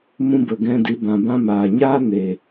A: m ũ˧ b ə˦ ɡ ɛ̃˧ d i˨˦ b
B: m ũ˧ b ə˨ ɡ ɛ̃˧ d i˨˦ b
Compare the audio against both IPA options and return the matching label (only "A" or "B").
B